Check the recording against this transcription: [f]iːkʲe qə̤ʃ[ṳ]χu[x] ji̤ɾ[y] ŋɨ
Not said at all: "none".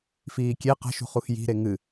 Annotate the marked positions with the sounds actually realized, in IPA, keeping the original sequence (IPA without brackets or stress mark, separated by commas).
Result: f, ṳ, x, e